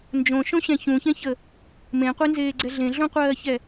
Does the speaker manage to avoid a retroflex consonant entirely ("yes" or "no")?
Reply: yes